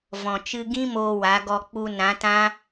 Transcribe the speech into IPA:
vɔ̃˨t͡ʃɨ˧ɡĩ˦ moː˧wa˨˦ɡɔ˧ k͡pu˧nã˨˦tã˦

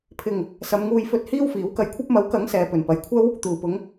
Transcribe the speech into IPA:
pʰɪ˨˩ŋ | sɐ˨˧mŋuː˧jfɵ˧t̚ hiː˥wfiː˨˥wkɐ˧jkʷʰɐ˥p̚ mɐ˨˥wkɐ˨˥ŋ sɛː˨pɵ˨˩npɐ˨jkʷʰɐ˥w | t̪uː˨˩pʊ˨˧ŋ

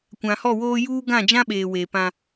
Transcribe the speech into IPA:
kʷã˨hɔ˦˨woː˦ juː˦ ɡã˦˨d͡ʒã˦ɓeː˨ weː˨pã˦

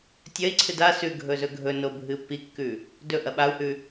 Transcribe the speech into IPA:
tʲɐi̯ǀʰɨd a sʉɡʱɵ zɵɡʱɵno bʱɨpːikːʉ | dɵ ʔɐɓau̯hʉ

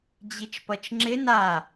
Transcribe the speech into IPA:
d͡ʑit͡ʃpʌt͡ʃŋ͡ǁɪ na

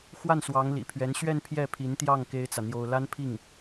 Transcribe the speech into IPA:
xwa˥˩nswɑ˧˥ŋlḭ˨˩pʰɥɛ˧˥n ɕɥɛ˥˧n pʰjɛ˥˩pʰi˧˥nt̪jɑ˥˩ŋ ke˥ɪ̯t͡sä˨ n̪jo˥ʊ̯ la˥npʰi˥˩ŋ

